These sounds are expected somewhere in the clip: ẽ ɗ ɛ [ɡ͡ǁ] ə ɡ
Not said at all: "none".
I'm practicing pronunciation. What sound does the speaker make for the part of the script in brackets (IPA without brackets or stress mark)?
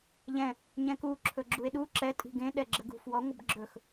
ɡ͡ǁ